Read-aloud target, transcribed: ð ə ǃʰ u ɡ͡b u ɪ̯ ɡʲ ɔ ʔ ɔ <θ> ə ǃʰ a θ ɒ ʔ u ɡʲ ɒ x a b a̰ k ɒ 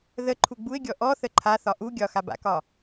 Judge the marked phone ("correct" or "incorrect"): correct